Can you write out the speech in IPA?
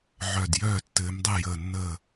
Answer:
ʕ œ˧˩ d j œː˥˩ tː ɘː˨˦ m dˤ ɛ˥˩ j əː˧˩ nː əː˧˩

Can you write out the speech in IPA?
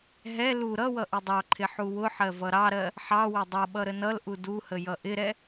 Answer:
ɦ ɛ l u ɾ ʌ w ʌ ʔ ɪ dˤ ɑ ǃʰ ɪ ħ u w ʊ ħ ɜ v ʌ ɾ ɑ ɾ ɜ | ħ ɑ w ə dˤ ʌ ɓ ʌ ɾ ə n ʌ l ʔ u d u h ə j ʌ ʔ ɪ ɾ ɛ

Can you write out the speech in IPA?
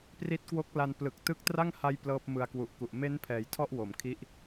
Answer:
p r i˦˥ t̚ k w o˦˥ k̚ l a˧ n p l ɯ˨˩ k̚ t ɯ˦˥ k̚ t r a˥˩ ŋ h a˦˥ j p l ɤː˦˥ p̚ m ɯ˧ a̯ k w u˨˩ ʔ k u˨˩ ʔ m e˦˥ n pʰ ɛː˩˦ j tʰ ɔ˥˩ ʔ w o˩˦ m kʰ i˦˥ ʔ

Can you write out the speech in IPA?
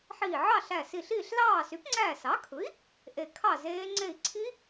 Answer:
ħ iː˧˩ ʕ ɑ˥˨ ɬ æ˧˩ s i˧˩ ɬ iː˥˨ ɬ l ɑː˥˨ s y˩˥ p ŋ͡ǀ æː˧˩ s ɑ˩˥ kʰ ɯ˩˥ i̯ | ʔ e˧˩ kʰ ɑ˥˨ z eː˦˥ ŋ͡ǀ e˧˩ i̯ ǀʰ i˦˥

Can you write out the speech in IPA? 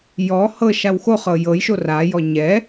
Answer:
j ɔ h ɤ ʃ a w x o χ ɤ j ɤ j ʃ o r a j ɔ ɲ ɛ

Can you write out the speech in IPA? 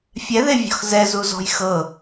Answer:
fʲ ɛ ð e vʲ ɔ̤ x z ɛ z u z ɔ̤ j x ɤ

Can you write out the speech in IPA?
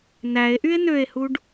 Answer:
n æ e̯ ʔ y e̯ n ø e̯ h u ɖ

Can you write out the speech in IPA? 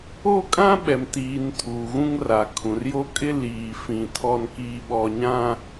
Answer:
o˦ kʼ ã˦ ɓ ɛ˨ m t iː˨ n tʰ uː˨ ɣ ũ˦ ŋ r a˨ kʰ ũ˨ r j o˦ kʼ ɪ˦ l iː˨ f ĩ˨ tʰ ɔ˦ n k iː˦ ɓ ɔ˦ ɲ ã˦

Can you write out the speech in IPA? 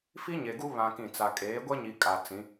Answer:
f i˦ ɲ e˨ ɡ u˦ β ã˦ k ĩ˦˨ t͡s a˨ kʼ eː˨˦ ɡʷ ɛ˦ ɲ i˨ kʼ a˨ t͡s ĩ˨˦

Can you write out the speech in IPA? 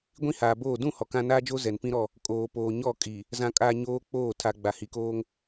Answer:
ɡʷ ĩ˦ h aː˨ b oː˦˨ d ũ˦˨ h ɔ˨ k ã˦ n aː˦ d͡ʒ o˦ z ɛ˨ n p ĩ˦ ɾ ɔ˦˨ | kʼ oː˨ p oː˨ ɲ ɔ˦˨ kʼ i˨ | z ã˨ kʼ a˨ ɲ oː˦ k͡p oː˦˨ tʰ a˨ ɡ͡b a˨ h i˨ k oː˦ ŋ

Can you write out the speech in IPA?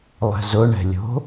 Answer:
lˠ ɛ̤ z ʊ ɳ ɛ̤ lʲ o̤

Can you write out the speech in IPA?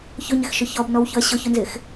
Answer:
ç ʊ ɲ ɪ x ʃ ʊ ç ɔ b n ɔ w ç ʊ ɐ̯ ɕ ʊ ç ʊ n z ɪ x

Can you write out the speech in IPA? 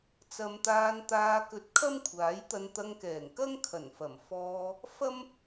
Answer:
t͡s ɐ˨˧ m t̪ aː˧ n t̪ aː˧ k ɵ˧ t̚ kʰ ɐ˥ m kʷʰ aː˨˥ j t̪ ɐ˧ n t̪ ɐ˧ ŋ k ɛː˨˩ ŋ k ɐ˥ ŋ kʰ ɐ˨˩ n f ɐ˨˩ m f ɔː˧ | f ɐ˥ m

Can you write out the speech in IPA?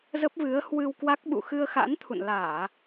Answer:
z ə˦˥ p̚ v ɨ˨˦ ə̯ h w ɨ˧ w k w a˦˥ k̚ ɓ ṵ˧˨ x ɨ˧ ə̯ x a̰˧˥ n t̪ʰ ṵ˧˨ n l aː˧˩˨

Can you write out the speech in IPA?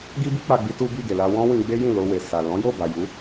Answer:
ɡ i˦ b i˦ k͡p a˧ ɡ͡b i˦ t u˦ b i˦˨ ɡ e˨ l a˧ w ɔ̃˦ w ĩ˧ ɡ͡b e˦ j ĩ˦˨ l o˧ w e˨ s a˨ l ɔ̃˨˦ j o˦˨ b a˨ j u˨˦

